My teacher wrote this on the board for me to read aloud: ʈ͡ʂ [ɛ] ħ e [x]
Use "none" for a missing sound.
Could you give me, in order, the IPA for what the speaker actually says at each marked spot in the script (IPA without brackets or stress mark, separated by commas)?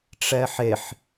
ɛ, ħ